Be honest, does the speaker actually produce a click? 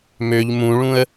no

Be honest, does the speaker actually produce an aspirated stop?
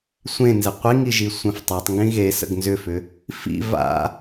no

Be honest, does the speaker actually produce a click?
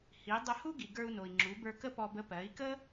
yes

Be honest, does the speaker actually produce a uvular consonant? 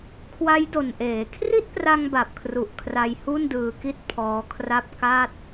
no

